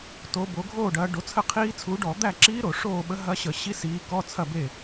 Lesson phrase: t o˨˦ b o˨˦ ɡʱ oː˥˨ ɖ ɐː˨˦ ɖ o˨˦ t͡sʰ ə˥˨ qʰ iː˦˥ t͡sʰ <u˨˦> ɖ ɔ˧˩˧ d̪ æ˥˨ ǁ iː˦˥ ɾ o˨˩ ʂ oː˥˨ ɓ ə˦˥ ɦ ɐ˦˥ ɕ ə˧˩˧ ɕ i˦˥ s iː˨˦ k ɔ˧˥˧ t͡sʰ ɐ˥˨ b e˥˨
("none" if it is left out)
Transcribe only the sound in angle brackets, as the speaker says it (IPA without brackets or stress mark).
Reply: u˨˦